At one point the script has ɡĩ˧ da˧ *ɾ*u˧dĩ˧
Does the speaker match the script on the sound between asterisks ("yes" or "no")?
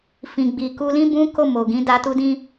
no